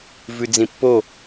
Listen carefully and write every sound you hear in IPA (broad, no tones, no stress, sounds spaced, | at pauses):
v ʉ d͡z ĩ pː o